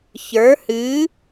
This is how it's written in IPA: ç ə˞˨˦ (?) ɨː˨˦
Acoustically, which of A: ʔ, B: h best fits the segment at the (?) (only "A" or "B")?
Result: B